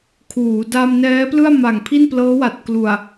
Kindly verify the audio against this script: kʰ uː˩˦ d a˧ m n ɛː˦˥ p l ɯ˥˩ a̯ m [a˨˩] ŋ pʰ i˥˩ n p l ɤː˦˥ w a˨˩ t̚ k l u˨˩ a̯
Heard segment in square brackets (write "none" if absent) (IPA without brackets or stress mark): a˨˩